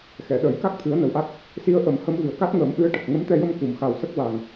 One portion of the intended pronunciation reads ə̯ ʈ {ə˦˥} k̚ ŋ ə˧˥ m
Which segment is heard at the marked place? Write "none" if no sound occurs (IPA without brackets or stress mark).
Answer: ə˨˩